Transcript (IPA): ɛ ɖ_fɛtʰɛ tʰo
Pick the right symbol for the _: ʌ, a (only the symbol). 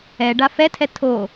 a